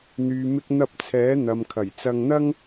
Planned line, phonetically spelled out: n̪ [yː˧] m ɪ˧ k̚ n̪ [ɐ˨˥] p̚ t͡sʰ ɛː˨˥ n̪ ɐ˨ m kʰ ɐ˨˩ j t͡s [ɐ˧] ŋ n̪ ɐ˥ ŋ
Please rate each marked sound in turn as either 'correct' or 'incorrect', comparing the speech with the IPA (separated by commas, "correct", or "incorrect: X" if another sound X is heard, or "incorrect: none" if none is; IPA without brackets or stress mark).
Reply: incorrect: yː˨, incorrect: ɐ˧, correct